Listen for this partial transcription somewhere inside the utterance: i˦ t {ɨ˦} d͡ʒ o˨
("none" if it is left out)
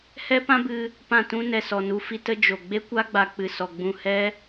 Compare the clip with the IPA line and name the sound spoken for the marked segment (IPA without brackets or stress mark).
ə˦